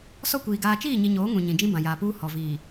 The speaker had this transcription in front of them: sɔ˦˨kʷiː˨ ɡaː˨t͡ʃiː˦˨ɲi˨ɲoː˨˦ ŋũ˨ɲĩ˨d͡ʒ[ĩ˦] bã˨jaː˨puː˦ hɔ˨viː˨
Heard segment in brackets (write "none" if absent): ĩ˦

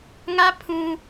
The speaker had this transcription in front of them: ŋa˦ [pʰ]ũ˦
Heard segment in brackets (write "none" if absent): pʰ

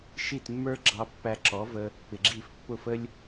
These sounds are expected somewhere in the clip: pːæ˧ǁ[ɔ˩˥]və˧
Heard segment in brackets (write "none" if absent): ɔ˩˥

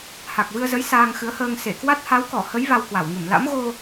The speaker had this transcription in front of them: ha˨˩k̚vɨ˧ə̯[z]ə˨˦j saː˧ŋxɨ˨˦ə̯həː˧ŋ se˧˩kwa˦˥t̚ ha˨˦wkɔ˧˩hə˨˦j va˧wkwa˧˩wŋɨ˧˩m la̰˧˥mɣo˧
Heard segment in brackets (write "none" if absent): z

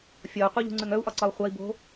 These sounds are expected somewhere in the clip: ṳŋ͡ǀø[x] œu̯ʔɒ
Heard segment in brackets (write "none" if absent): ŋ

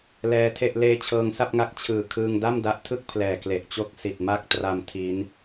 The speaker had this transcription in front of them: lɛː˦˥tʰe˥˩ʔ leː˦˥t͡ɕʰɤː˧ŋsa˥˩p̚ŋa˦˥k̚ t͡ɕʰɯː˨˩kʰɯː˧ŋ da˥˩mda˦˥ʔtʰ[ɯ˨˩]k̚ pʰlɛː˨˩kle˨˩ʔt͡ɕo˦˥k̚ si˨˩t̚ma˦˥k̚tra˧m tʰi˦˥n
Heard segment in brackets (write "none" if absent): ɯ˥˩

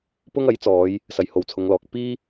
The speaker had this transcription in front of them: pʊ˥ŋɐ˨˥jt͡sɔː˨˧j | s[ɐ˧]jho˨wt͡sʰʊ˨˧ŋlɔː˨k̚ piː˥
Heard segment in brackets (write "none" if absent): ɐ˨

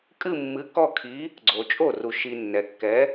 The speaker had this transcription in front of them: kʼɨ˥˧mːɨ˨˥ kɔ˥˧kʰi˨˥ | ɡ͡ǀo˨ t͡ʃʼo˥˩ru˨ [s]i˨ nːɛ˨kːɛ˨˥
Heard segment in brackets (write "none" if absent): ʃ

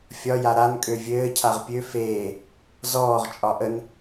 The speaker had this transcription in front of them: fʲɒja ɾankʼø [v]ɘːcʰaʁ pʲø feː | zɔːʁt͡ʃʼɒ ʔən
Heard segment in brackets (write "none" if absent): vʲ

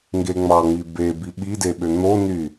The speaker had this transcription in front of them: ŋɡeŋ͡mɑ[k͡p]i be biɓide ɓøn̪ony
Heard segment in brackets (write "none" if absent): ŋ͡m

